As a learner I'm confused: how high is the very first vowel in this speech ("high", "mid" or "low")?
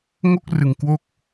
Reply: mid